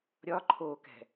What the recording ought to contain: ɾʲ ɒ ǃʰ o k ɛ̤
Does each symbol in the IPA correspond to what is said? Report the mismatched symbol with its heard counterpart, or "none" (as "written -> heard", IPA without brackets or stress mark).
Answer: none